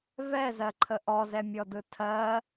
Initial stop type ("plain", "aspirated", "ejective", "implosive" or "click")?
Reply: click